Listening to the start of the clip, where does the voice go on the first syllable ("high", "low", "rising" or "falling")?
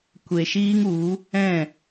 low